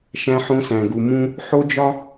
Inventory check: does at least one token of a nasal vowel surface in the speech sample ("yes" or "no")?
yes